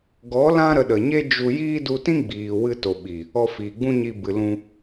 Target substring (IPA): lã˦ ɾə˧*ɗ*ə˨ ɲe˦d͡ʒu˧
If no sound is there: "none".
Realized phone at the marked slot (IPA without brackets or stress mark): ɗ